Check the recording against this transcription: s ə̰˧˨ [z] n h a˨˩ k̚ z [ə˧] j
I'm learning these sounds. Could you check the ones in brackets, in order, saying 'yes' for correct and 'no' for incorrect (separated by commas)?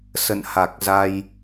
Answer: no, no